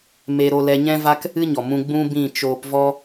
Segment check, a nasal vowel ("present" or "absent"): present